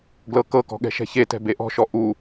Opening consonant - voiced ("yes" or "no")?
yes